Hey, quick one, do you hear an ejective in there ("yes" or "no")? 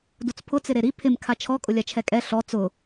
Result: yes